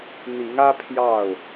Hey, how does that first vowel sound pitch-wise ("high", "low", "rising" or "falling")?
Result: rising